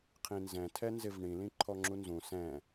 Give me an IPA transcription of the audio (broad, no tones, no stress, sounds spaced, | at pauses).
qʰ ĩ n z ɛ̃ tʰ ɛ n z ɪ v ɳ ĩ l ĩ ǃʰ ɔ ŋ͡ǁ u n z ũ s ɛ̃